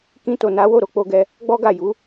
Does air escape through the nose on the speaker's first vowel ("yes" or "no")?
yes